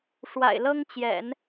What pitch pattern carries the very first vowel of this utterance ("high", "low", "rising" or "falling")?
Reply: low